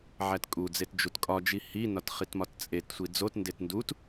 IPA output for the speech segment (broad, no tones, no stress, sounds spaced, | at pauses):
ʕ æ t kʼ u d͡z e t d͡ʒ u t kʼ ɒ d͡ʒ i h i n ɒ t χ i t m ɒ t t͡sʼ e t sʷ i d͡z o t n d e t n d u t